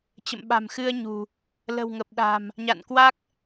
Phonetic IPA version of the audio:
t͡ɕ ə̰˧˨ m ɓ a̤˨˩ m x ɨ˧ ə̯ ɲ ṳ˨˩ | l ə̤˨˩ w ŋ ə˨˩ p̚ ɗ a̤˨˩ m | ɲ a̰˧˨ n k w a˦˥ k̚

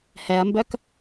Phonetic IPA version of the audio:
h ɛ ɐ̯ m b œ k

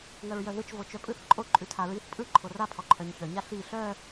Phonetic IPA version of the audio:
ŋ œ ɹ j œ ð ɯ t͡ʃ v o t͡ʃ œ pʼ ɯ θ ǃʼ o ǃʼ ʉ tʰ a ɹ i θ pʼ ɯ ǃʰ o r a pʰ ɔ ǃʰ œ ɲ ç œ ɲ a ɬ i ɬ œ

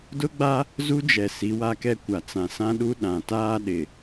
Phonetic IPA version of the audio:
d ʊ˦ ɡ͡b a˦ | z u˦ d͡ʒ ɛ˨ s i˨˦ w a˦ k ɛ˦ kʷ a˨ t͡s ã˨ s ã˦ ɗ u˦ ɗ ã˨ t aː˦ ɗ ɪ˨

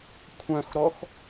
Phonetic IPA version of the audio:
kʷʰ œ̃ x ɾ ɔ x

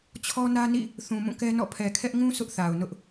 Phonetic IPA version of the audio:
t͡ɕʰ ɔ˦ n ä˦ n ḭ˦˨ | θ ũ˨ m ũ˦˨ k ɛ˦ n ɔ̰˦˨ pʰ ɛ˨ kʰ ɛ˦ ʔ ŋ ũ˦ sʰ ʊ˦ ʔ θ a˨ ʊ̯ n ʊ˦ ʔ

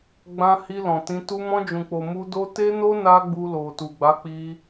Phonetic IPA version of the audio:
ɡ͡b ã˧ h i˧ l ɔ̃˨ t ĩ˧ t u˧ m ɔ̃˧ d͡ʒ ũ˨ k͡p o˨ m u˧ d o˦ t e˦ n o˦ n a˦ ɡ͡b u˧ l o˨ t u˨ ɡ͡b a˨˦ k͡p i˧

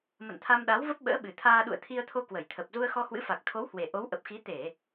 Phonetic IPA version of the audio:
m ə̰˧˨ n t̪ʰ a˧ m ɗ a˨˦ w v ə˦˥ p̚ ɓ ə̰ː˧˥ ɓ ɨ˨˩ t̪ʰ aː˧ ɗ ṵ˧˨ ə̯ t̪ʰ i˧ ə̯ t̪ʰ o˧ k w ə˧˩ j t̪ʰ ə˨˩ p̚ z u˧ ə̯ x ɔ˧ h w ɨ̰˧˥ f a˨˩ k̚ t̪ʰ o˨˦ w h w e˨˩ ʔ o˨˦ w ʔ ə˨˩ p̚ x i˨˦ t̪ e˧˩˨

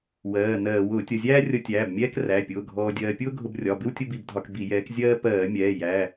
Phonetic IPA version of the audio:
w ɜː˩˧˩ n ɜː˧˩˧ w ʊː˧˩˧ tʲ ʌ˩˧˩ zʲ æː˥ rʲ ʌ˧ tʲ æː˩˧˩ b mʲ ɛː˥ k r æ˩˧˩ pʲ ʊː˩˧˩ ɡʱ ɔː˧ dʲ ɜː˧ pʲ ʊː˥ ɡʱ ʊ˧ b rʲ ɒ˩˧˩ b ɪ˥ w tʲ ʊ˥ b i˧˩˧ b dʱ ɒ˧ k b i˧˩˧ j ɛː˨˥ k zʲ ɜː˥ p ɜː˧˩˧ mʲ ɛː˩˧˩ j æ˩˧˩

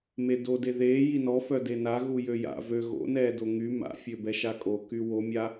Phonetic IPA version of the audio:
m e d o d e ð eː j i n ɔ f œ d e n a ɣ u j ø j a̰ v ø ɣ o̰ n ɛː d o ŋ y m a̰ fʲ ø b ɛ ʃ a kʼ o k y w o mʲ a

